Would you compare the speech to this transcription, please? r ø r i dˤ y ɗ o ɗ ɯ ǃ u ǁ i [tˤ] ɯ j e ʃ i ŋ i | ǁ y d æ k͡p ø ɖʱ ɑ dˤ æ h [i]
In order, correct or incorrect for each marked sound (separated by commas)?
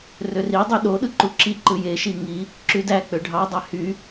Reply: incorrect, incorrect